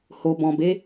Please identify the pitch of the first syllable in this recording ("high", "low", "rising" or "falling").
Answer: low